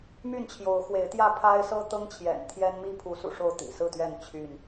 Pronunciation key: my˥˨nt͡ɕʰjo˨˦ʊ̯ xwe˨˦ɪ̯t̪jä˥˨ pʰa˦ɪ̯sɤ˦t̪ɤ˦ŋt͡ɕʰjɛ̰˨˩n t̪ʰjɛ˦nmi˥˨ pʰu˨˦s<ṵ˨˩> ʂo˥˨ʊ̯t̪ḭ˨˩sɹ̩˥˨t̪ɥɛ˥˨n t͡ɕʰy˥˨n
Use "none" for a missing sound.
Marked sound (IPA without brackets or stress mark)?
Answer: ṵ˨˩